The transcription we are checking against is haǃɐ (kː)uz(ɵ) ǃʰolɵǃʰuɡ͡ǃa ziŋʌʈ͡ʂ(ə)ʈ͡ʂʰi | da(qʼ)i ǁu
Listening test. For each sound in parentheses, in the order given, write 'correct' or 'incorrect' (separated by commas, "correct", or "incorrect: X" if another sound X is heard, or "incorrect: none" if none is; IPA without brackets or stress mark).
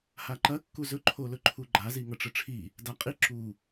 correct, correct, correct, correct